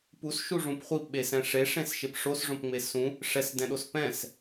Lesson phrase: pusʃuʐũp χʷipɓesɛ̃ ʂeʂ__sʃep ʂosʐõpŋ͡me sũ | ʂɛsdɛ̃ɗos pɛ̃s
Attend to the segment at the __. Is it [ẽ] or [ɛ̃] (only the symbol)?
ẽ